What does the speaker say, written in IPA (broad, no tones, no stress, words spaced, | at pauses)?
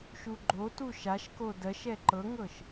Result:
ʃuɡ͡ǃotu ʃaʃko dɜʃ ɛǃɤŋɤʃ